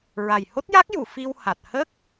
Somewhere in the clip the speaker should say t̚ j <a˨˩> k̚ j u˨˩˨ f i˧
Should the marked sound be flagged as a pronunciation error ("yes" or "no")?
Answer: yes